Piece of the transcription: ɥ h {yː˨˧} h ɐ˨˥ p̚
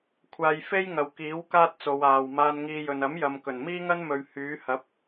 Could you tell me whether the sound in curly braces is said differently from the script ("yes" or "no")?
yes